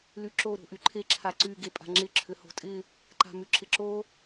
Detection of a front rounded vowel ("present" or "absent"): present